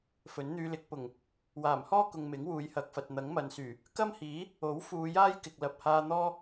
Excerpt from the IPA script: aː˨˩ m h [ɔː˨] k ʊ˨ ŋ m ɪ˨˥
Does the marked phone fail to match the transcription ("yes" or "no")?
yes